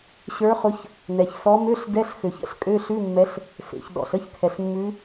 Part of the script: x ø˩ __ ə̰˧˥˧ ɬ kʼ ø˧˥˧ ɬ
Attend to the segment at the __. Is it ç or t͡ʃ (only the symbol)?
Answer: ç